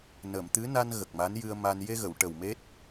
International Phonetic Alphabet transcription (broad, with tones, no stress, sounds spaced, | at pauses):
n ə˨˩˨ m t̪ ɨ˧˥ n a˧ n ɣ ə˨˩ k̚ m a˧˥ n j ɨ˧ ə̯ m a˧ n j e˧ ɣ ə˨˩˨ w ʈ ə˨˩ w m e˦˥ t̚